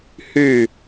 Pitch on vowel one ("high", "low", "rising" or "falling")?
falling